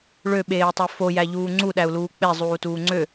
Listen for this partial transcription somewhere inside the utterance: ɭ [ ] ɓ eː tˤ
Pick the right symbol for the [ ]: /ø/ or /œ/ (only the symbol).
ø